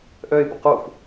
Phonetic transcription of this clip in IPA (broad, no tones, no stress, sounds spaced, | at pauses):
ʔ œ ɪ̯ b ə q o f